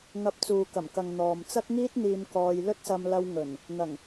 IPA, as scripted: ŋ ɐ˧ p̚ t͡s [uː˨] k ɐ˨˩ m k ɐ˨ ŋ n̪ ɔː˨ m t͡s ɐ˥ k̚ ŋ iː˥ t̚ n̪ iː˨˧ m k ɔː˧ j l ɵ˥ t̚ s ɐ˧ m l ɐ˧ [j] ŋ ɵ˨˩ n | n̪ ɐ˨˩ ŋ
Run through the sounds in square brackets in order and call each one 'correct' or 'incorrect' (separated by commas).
correct, incorrect